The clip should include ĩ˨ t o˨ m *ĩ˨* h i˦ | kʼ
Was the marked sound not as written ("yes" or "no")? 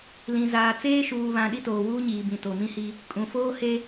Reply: yes